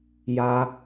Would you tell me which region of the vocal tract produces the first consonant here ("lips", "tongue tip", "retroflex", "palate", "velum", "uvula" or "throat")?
palate